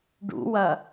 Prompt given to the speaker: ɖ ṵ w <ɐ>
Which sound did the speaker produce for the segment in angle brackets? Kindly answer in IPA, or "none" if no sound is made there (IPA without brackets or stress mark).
ɐ